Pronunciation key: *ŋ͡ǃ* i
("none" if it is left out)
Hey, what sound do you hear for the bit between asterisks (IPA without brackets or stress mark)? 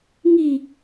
ŋ